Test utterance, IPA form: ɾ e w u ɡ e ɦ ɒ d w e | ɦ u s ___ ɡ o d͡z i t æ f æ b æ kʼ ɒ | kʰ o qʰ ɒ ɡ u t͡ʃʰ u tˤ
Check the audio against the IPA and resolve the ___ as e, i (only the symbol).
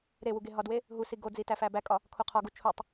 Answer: i